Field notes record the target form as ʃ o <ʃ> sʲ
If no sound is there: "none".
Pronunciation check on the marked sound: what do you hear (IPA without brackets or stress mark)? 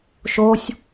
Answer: none